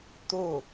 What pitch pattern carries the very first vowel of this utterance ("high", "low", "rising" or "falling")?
falling